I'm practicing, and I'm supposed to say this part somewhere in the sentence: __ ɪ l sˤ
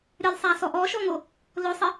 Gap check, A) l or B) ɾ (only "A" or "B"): B